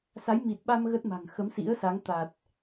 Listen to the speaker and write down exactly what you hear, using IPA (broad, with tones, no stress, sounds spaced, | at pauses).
s a˨˦ j m i˨˩ t̚ ɓ a˧ m ɣ ə˦˥ t̚ m a̤˨˩ ŋ x ə˨˦ m s ḭ˧˥ ə̯ s a˨˦ ŋ t̪ a˨˩ t̚